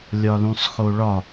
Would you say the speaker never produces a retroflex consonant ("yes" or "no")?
no